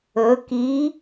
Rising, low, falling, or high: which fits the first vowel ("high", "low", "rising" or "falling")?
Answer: rising